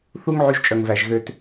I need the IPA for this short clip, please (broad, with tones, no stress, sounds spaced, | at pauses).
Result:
θ u˦ ŋ ʕ y˦ ʒ t͡ʃʼ œ˧ ŋ v æ˧ ʒ ɣ ø˦ t